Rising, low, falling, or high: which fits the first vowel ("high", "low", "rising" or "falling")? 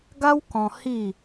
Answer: high